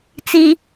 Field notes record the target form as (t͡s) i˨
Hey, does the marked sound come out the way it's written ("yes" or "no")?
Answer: yes